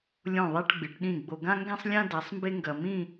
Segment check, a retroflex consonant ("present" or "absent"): present